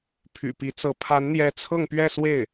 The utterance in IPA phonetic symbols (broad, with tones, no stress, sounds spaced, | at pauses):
pʰ y̰˨˩ p i˧˥ t͡s ɤ˧˥ pʰ a˧˥ n n̪ j ɛ˧˥ t͡sʰ ɤ˥˧ ŋ p ɥ ɛ˥˧ s w e˥˩ ɪ̯